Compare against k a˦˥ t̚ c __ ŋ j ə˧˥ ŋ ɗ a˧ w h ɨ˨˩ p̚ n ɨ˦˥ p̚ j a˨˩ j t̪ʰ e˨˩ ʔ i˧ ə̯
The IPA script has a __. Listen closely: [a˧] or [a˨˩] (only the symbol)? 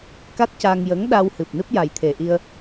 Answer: a˧